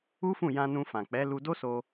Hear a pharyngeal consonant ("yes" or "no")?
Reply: no